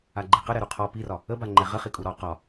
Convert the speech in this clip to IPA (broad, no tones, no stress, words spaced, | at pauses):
aɡ͡ǃiqə ɾɛɾuqʰɔ pirɒ | əba ŋ͡ǃɛʁəχi kʼuɾɔ qɒ